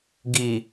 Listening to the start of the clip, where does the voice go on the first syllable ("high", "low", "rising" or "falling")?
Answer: low